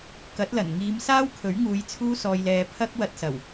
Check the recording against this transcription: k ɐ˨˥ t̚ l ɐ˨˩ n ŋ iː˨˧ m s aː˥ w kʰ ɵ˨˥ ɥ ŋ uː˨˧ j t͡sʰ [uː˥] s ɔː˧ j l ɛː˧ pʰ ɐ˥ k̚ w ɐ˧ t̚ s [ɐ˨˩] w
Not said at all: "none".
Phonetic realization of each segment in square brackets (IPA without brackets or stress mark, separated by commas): uː˥, ɐ˨˩